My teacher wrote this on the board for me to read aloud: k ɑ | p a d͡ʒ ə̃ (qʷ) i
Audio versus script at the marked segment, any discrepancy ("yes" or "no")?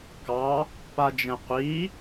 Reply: no